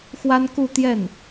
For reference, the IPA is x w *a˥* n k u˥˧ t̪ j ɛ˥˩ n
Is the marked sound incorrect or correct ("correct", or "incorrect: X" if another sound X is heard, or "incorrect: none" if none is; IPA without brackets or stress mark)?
correct